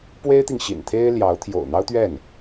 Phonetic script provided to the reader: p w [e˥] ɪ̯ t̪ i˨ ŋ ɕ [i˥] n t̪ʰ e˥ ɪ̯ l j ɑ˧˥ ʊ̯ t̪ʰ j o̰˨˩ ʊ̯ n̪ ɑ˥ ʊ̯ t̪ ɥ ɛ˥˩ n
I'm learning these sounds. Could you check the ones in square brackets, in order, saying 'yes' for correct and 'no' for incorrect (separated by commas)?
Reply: yes, no